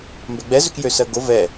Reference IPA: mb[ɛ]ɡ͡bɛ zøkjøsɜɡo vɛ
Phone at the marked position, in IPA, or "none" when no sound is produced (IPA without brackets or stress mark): ɛ